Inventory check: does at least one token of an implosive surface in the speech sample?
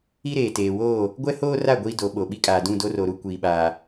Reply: yes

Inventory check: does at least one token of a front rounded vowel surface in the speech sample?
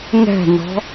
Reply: no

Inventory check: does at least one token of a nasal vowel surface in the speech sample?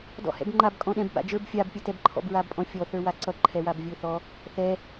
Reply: yes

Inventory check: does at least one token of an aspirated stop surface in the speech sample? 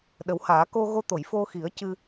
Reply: no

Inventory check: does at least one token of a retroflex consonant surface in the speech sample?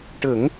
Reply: yes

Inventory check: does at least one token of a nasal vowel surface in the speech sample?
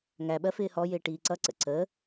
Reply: no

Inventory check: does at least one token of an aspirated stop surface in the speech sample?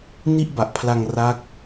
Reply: yes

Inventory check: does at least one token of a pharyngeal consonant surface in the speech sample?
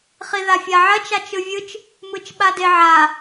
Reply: yes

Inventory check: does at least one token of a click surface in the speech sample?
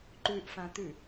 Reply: yes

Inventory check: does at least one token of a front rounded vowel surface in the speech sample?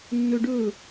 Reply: no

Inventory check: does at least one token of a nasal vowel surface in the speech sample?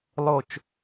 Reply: no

